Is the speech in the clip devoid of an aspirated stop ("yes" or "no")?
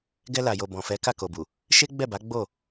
yes